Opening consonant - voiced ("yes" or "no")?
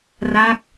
yes